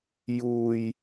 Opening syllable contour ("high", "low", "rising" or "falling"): low